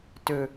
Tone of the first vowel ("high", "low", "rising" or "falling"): low